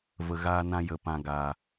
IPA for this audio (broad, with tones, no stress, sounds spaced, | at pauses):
v ə˨ ɣ aː˧ n ã˧ j ə˨ p ã˨ ɡ aː˨